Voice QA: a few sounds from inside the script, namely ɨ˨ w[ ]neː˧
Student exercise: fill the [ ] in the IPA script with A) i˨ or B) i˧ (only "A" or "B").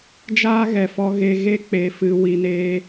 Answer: A